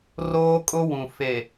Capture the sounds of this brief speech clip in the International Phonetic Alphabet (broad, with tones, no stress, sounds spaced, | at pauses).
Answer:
r oː˦ kʼ ʊ˦ w ũ˨ f e˨